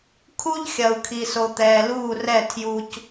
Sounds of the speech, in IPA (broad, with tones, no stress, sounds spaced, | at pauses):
kʰ u˦ ʎ xʲ ɐ˨ u̯ kʰ i˨ s o˨ t̪ ɛː˨ l uː˦˨ r ɛ˦˨ tʰ j u˨ c